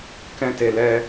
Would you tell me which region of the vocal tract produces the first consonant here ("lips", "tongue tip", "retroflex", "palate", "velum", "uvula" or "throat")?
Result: velum